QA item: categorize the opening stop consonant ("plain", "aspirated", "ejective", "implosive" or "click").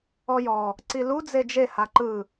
click